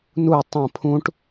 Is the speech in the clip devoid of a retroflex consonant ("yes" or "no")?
no